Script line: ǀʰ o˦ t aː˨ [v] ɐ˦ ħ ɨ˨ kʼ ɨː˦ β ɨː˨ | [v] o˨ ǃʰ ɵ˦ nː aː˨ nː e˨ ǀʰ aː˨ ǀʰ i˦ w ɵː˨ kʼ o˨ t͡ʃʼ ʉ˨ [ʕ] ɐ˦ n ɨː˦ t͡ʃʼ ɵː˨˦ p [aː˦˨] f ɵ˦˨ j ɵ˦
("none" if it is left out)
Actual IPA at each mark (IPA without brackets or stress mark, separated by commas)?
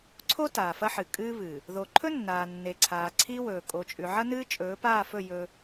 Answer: f, ð, ʕ, aː˦˨